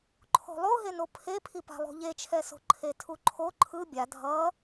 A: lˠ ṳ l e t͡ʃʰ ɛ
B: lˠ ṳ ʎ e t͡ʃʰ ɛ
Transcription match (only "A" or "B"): B